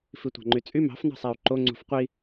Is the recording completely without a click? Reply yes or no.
no